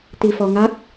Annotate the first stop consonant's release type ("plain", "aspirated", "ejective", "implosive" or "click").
plain